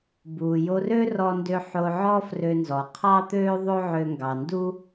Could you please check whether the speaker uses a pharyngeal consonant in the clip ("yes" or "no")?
yes